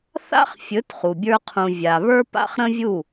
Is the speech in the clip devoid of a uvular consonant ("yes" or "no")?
no